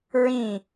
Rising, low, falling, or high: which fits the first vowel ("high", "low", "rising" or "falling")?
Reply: falling